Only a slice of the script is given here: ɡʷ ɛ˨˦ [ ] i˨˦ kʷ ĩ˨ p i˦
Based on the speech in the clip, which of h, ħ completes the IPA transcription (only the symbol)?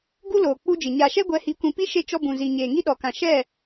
h